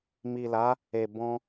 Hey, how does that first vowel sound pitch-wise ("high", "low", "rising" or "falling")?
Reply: low